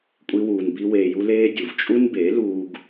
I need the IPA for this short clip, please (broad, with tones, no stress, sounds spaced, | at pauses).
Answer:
kʷʼ i˦ w uː˧ n b i˦ w eː˧ j u˦ l eː˦ dʲ u˨ v t͡ʃʼ u˦ n b e˨˦ l uː˦ ɡ